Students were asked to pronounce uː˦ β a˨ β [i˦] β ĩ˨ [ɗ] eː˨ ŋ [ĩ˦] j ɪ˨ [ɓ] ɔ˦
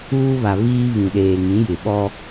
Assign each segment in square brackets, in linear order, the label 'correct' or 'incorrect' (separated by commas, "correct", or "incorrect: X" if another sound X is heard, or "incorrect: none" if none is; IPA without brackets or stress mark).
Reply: incorrect: iː˦, correct, incorrect: ĩ˨˦, correct